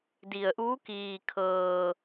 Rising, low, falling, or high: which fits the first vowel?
low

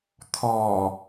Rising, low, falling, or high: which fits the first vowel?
low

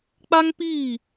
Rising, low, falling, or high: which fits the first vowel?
high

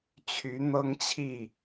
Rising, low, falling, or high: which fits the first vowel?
rising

